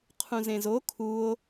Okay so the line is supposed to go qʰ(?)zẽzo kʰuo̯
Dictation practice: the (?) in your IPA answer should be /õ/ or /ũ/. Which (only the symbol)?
ũ